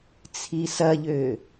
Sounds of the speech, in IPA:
t͡sʰ i s ɐ ʎ ø

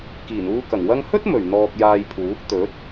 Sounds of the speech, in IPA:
k iː˨˩ n uː˧ k ɐ˨˩ ŋ w ɐ˥ ŋ h ɵ˥ t̚ m ɵ˨˩ ɥ n̪ ɔː˧ k̚ j aː˧ j pʰ uː˨˥ k̚ t̪ ɵ˨˥ t̚

